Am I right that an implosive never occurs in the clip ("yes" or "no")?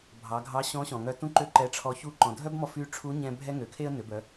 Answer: yes